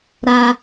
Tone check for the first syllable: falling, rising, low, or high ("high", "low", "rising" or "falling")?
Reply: low